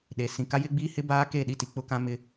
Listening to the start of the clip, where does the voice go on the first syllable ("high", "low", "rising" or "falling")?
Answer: low